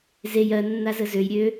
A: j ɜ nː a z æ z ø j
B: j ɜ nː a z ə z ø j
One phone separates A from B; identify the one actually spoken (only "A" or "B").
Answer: B